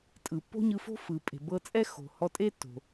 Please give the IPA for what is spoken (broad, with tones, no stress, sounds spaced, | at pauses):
tʼ ɯ˩ pː o̤˥ ɲ ɯ˧ f o̤˥ f ɯ˩ pʼ e̤˩ b ɤ˧ t͡sʼ ɛ˥ x o̤˩ h ɔ˧ tʼ e˥ tː o̤˩